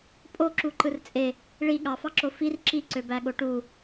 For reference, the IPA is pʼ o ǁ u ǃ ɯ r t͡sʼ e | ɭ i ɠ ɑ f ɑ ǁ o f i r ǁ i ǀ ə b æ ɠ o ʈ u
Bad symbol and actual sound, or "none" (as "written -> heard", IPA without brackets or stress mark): ə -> ø